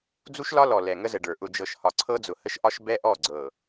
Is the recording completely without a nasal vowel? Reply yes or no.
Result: yes